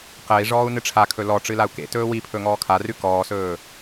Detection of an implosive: absent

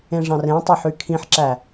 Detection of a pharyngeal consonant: present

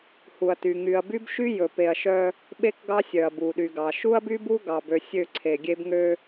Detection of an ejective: absent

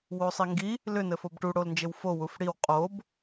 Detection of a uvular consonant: present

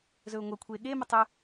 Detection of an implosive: present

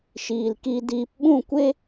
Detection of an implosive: present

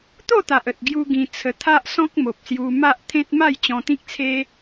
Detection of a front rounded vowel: absent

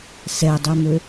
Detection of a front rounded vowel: present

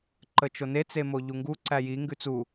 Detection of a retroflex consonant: absent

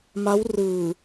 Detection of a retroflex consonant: absent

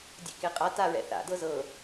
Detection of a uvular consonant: present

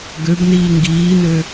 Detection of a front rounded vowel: present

